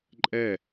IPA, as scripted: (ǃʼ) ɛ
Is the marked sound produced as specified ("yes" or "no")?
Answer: yes